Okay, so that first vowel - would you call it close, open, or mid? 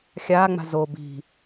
open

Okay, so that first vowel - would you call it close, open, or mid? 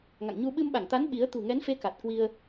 open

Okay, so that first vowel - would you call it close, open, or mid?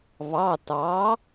open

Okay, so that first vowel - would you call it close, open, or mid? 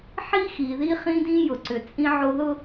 close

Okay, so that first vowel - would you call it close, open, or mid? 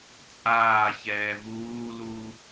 open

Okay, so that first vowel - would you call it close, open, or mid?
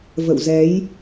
mid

